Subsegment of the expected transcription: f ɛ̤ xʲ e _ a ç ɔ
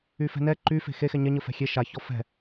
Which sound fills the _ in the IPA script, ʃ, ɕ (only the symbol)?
ʃ